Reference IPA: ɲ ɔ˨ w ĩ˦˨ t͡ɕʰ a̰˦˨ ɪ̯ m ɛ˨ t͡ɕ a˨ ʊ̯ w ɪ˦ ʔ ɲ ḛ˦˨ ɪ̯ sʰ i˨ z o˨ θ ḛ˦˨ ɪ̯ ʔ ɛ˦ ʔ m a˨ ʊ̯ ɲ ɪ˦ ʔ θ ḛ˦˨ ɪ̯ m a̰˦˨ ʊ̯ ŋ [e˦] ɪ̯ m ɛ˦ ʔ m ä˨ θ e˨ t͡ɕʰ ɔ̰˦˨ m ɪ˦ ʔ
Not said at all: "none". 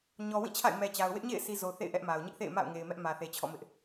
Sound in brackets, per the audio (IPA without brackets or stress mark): e˨